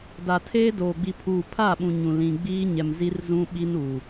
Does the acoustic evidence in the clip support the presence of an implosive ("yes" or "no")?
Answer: yes